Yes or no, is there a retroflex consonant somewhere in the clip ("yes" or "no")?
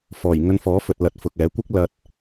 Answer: no